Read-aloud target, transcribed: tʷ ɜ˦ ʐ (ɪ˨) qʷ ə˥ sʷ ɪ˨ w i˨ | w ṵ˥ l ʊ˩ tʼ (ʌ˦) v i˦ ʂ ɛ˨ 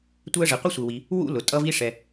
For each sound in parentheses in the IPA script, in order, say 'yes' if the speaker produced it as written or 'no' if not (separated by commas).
yes, yes